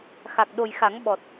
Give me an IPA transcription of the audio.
x a˨˩ k̚ ɗ o˨˩ j x a˨˩˦ ŋ ɓ ɔ˨˩ t̚

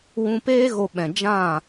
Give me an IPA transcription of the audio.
w ũ˧ p eː˦ ɣ o˧ ɓ ɛ̃˨ d͡ʒ ã˦˨

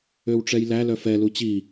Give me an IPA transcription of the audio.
ø w ʈ͡ʂ ɛ j l æ l œ f ɛ l u t͡ɕ i

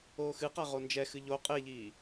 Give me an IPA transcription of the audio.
oː x ɨ q a ʁ o n d͡ʒ ɛ x ɨ ʎ o qʼ e ʎ iː

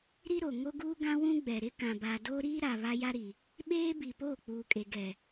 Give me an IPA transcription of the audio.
ɾ i˦ ɾ o˨ ŋ o˦ ɡ uː˦ ɡ ã˦ w ũ˦ ɡ͡b ɛ˨ ɾ ɪ˦ k ã˨ b a˨ d oː˦ ɾ iː˦ ɾ a˨ β a˦ j a˦ ɾ i˨ | ɓ eː˦ b i˨ p oː˦˨ k͡p uː˨ kʼ e˨ ɡ ɛ˨

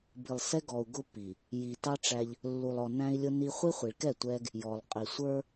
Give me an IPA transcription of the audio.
b i˨ lˠ s ɛ˦ ɡ ɔ˨ u̯ ɡ ʊ˦ pː i˨ | j i˨ t ɑ˦ ʈ͡ʂ æ˦ ʎ | lː u˨ lˠ ɔ˨ n æ̃˦ i̯ lʲ ʊ˦ n i˦ χʷ i˦ χʷ i˨ ɭ k ɛ˦˨ tʷ ɛ˦ ɡ | j ɔ˨ lˠ qʼ i˨ sʷ ə˞˦

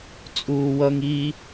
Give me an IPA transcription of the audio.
t͡sʼ uː w ʌ ŋ i

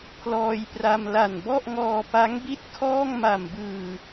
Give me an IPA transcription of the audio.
pʰ l ɔː˧ j p r a˧ m l a˨˩ n b ɔ˥˩ ʔ ŋ ɔː˧ p a˦˥ ŋ b i˥˩ t̚ kʰ ɔː˥˩ ŋ m a˨˩ m b ɯː˨˩

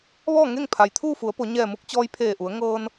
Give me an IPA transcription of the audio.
ʋ ɔː˥˨ ŋ e˥˨ ŋ pʰ a˩ j t̪ʰ uː˥˨ f u˩˧ ə̯ p o˩˧ ɲ ɛː˧˩ m u˧ k̚ t͡ɕ ɔː˧ j pʰ eː˧˩ ʔ u˩˧ ə̯ ŋ ɤː˧ n

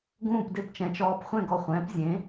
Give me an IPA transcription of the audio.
ɡ ũː˥˩ p d ɪ˥˩ p t͡ʃ ɛ̃˩˥ t͡ʃ ɔː˧ p χʷ ɛ̃˥˩ ɡ ɔ˧ χʷ ɛ̃ː˩˥ p zʲ ẽ˩˥

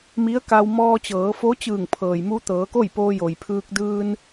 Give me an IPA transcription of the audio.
m i˧˥ ə̯ k a˧ w m ɔː˧ t͡ɕ ɤː˩˧ f o˧˥ t͡ɕ ɯː˧˩ ŋ pʰ ɤː˩ j m u˧ t̪ ɤː˩˧ k o˥˨ j p oː˧ j o˩ j pʰ ɯː˧ k̚ d ɯː˧ n

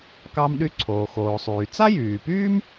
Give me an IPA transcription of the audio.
k ɑ˥ m ɗ y˥ ǀʰ oː˩ x oː˩ sˤ yː˩ t͡s a˥ j yː˩ p yː˥ m

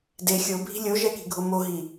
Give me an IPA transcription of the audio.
d e xʲ o bʱ i̤ lʲ o ʒ ɛ k i̤ ɡʱ o m o ɦ i

